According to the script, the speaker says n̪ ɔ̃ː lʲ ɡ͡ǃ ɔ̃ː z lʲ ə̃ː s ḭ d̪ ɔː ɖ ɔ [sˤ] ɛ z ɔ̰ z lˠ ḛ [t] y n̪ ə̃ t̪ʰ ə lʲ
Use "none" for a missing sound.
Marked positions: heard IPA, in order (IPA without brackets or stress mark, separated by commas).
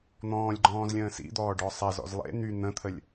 sˤ, n̪